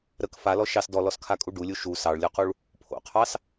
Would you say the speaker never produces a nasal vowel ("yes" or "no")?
yes